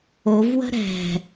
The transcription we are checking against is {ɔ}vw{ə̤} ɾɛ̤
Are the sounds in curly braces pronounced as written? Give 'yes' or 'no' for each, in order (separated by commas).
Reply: no, yes